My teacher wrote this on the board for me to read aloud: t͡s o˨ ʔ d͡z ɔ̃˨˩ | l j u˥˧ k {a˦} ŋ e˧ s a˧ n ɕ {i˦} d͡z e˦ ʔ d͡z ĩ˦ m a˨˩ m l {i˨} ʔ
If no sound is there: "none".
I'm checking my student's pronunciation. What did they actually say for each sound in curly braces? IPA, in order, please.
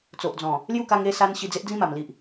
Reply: a˧, i˧, i˨

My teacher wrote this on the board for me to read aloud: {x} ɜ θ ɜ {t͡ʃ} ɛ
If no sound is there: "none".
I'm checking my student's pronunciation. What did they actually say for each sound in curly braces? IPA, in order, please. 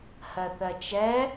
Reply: h, t͡ʃ

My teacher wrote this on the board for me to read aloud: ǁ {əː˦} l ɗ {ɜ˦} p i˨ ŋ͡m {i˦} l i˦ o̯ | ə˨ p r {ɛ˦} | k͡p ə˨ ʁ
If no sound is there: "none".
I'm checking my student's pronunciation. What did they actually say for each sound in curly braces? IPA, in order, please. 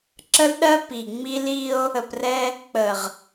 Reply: ə˦, ɜ˦, i˦, ɛ˦

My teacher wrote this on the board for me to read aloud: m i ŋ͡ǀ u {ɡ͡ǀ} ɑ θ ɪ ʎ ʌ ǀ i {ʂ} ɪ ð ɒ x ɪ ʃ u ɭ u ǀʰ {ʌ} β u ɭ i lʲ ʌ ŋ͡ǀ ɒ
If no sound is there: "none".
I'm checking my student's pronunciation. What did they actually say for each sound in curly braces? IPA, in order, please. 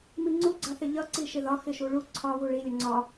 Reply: ɡ͡ǀ, ʃ, ɒ

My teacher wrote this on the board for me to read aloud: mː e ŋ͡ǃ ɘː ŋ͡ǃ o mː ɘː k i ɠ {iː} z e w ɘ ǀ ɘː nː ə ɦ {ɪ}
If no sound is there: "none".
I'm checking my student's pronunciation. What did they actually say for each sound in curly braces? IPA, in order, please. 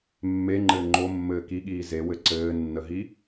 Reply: iː, i

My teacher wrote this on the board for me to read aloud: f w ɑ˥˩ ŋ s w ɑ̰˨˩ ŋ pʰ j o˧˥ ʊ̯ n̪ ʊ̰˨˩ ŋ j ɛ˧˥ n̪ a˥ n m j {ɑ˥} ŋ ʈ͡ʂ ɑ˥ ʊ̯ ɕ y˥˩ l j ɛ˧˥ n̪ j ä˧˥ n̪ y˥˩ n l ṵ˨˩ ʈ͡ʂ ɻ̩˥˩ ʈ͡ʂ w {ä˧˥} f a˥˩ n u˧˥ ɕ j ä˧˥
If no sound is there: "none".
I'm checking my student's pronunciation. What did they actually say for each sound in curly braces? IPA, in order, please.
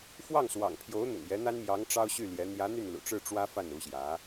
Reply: ɑ˧˥, ä˥

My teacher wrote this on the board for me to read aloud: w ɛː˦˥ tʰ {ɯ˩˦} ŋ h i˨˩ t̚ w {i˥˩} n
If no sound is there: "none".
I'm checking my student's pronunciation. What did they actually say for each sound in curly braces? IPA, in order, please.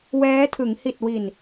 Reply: ɯ˩˦, i˨˩

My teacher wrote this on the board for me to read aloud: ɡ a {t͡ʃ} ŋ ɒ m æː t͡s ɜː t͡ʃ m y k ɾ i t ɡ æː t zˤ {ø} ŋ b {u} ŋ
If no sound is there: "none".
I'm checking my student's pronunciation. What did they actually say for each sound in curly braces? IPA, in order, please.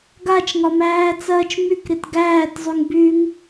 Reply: t͡ʃ, y, y

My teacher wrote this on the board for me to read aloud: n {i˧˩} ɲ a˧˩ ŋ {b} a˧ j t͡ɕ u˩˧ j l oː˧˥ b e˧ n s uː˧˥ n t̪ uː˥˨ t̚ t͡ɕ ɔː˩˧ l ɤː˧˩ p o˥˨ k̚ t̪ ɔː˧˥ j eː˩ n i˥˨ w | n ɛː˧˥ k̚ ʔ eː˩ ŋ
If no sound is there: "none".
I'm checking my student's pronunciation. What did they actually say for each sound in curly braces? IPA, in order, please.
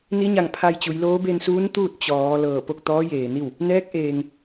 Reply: i˧˥, pʰ

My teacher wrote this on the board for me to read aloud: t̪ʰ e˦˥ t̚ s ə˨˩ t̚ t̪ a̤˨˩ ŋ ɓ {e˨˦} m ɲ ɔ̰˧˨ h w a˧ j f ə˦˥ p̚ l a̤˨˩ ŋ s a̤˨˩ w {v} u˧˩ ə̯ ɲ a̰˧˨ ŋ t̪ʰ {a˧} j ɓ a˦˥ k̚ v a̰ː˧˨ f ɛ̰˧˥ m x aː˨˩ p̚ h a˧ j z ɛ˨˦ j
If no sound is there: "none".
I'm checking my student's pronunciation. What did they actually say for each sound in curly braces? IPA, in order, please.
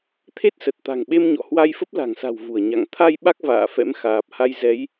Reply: e˧, v, a˧

